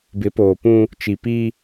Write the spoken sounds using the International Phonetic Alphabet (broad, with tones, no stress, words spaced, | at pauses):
bɪ˨˦poː˨pũ˦ | t͡ʃi˨pi˦